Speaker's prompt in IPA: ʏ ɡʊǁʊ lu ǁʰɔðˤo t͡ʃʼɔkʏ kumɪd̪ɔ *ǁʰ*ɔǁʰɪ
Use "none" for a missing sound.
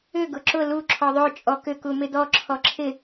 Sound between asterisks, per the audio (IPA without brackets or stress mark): ǁʰ